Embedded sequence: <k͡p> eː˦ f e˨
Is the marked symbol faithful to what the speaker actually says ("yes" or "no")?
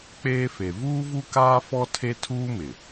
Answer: yes